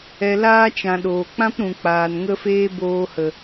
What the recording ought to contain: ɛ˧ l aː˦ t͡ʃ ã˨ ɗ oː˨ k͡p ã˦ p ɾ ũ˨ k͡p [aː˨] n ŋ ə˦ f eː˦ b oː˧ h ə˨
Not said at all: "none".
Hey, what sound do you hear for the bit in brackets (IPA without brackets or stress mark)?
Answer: aː˨